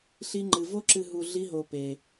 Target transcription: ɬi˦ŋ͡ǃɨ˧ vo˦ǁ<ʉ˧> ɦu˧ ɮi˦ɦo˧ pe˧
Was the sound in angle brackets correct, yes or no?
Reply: no